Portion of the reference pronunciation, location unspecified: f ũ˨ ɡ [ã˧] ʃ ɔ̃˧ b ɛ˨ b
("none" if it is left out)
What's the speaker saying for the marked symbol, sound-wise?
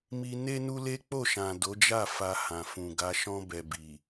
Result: a˧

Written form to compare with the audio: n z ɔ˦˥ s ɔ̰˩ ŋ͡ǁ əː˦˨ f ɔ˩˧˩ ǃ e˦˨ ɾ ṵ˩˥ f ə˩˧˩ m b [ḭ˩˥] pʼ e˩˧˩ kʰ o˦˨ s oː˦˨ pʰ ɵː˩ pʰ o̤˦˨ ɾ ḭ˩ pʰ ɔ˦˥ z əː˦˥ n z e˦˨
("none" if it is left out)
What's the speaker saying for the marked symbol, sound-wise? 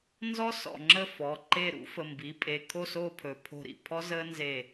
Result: i˩˥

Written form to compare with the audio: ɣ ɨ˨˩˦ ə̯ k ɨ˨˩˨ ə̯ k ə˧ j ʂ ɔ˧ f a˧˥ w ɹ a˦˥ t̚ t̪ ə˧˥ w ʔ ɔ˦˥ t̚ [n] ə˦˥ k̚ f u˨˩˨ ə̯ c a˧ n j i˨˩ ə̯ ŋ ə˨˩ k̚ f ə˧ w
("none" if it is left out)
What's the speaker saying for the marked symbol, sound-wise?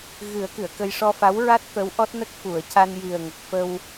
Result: n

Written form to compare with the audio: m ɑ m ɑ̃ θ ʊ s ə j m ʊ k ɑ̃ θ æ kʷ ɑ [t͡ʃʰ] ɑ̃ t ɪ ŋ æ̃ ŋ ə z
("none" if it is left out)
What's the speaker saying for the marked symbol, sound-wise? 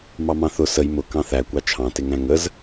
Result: t͡ʃʰ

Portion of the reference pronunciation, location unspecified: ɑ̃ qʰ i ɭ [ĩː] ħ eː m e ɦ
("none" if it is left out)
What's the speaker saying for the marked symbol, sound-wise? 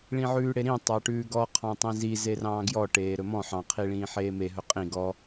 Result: ĩː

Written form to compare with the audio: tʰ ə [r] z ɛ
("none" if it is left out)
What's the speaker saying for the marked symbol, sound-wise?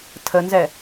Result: n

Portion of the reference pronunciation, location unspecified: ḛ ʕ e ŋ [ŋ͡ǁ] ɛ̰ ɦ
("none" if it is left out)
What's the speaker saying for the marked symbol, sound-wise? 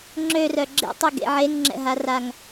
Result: ŋ͡ǁ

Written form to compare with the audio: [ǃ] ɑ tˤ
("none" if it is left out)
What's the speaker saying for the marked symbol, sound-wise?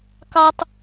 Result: k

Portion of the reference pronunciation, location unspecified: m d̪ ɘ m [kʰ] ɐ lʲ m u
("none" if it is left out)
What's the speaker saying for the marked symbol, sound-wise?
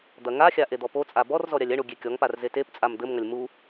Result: ŋ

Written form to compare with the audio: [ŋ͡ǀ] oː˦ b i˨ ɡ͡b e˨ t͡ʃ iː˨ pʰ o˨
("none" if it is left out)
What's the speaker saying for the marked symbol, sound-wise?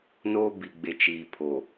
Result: n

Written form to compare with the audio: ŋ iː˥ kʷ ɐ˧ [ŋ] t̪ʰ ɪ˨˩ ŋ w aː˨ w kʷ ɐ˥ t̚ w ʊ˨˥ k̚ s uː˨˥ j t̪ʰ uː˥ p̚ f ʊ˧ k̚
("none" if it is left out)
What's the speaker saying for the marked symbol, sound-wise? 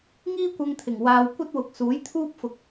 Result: ŋ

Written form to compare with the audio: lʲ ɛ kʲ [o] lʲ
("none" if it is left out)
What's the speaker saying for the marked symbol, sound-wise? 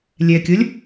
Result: o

